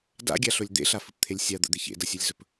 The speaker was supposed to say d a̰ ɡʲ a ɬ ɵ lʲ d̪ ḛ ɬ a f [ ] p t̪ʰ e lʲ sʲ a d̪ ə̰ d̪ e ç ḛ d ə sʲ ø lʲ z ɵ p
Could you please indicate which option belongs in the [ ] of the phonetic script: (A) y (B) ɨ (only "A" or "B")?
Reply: B